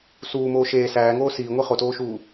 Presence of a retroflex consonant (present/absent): absent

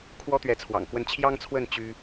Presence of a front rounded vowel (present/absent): present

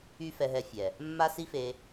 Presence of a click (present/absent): absent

